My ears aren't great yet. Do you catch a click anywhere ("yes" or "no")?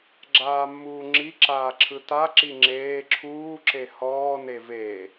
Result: yes